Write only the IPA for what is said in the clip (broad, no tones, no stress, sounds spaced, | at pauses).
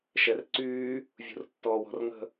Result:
ʃ ɛ r ǀ yː | vʲ ṳ r tː ɔː w ɔ̤ r ŋ ə̤